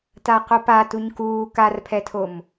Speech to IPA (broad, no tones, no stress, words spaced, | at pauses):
taqopa tuɲkuː karpʰɛtʰom